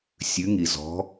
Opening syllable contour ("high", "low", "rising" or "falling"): rising